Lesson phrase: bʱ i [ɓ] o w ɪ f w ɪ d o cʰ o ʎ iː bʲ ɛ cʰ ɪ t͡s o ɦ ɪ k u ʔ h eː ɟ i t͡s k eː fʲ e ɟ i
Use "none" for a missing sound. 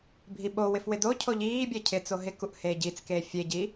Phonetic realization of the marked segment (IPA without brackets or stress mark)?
ɓ